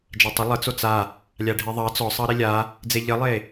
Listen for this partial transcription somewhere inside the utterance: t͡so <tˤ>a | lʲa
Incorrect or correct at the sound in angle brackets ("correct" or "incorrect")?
incorrect